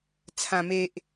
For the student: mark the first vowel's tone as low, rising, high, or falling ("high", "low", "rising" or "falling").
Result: low